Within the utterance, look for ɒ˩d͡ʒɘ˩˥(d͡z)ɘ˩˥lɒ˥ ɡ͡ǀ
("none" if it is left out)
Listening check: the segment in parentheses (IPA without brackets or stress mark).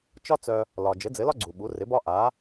d͡z